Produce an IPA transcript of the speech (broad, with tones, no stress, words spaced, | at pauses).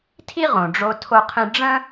tʰi˥ ʁõ˩ɖ͡ʐo˧ tʰo˧qʰĩ˧ ɖ͡ʐə̃˥